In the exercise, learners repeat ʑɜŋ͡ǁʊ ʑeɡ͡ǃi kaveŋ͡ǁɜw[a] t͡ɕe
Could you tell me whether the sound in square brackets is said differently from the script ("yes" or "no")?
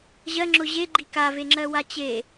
no